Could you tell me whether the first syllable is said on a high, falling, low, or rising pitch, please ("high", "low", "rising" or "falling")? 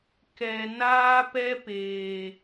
low